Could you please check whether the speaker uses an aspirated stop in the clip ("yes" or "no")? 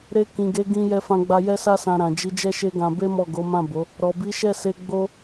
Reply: no